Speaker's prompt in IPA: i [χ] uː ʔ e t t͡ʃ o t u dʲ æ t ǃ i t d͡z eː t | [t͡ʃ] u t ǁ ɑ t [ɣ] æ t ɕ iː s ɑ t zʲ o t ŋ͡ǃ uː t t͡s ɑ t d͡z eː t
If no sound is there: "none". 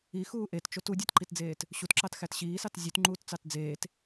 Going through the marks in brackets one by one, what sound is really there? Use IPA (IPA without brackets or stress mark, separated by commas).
x, ɕ, x